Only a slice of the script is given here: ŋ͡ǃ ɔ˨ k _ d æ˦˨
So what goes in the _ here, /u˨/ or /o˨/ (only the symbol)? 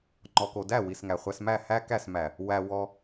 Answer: o˨